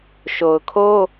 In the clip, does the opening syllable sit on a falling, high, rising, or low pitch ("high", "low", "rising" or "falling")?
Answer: low